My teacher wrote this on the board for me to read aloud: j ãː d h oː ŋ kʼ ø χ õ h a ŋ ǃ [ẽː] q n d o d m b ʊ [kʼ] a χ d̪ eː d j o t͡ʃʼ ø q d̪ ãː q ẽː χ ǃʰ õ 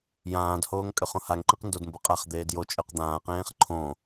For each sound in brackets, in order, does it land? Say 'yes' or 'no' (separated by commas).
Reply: no, no